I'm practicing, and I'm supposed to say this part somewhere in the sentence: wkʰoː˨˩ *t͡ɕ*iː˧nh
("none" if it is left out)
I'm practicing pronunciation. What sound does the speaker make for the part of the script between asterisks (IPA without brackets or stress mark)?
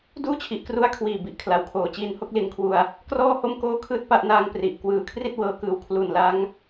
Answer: t͡ɕ